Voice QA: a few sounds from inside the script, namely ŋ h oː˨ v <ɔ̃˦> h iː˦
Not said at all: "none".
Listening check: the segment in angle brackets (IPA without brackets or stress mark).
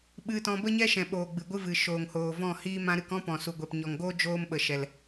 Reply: ɔ̃˦˨